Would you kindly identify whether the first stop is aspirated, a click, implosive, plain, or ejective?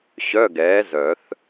plain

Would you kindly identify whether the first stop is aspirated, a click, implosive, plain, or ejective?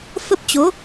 plain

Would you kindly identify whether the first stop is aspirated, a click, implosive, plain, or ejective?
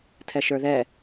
aspirated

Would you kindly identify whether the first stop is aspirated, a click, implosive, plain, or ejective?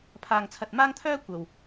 aspirated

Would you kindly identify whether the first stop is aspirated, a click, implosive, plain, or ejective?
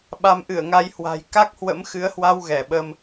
implosive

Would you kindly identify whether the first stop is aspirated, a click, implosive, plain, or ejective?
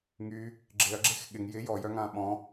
click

